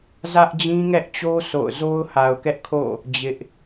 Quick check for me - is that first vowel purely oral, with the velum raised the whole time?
yes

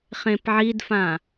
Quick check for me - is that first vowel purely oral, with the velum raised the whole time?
no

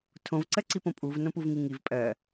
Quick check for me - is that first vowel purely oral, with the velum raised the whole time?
no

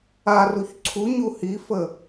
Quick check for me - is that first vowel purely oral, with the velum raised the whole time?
yes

